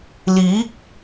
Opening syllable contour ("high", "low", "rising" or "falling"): rising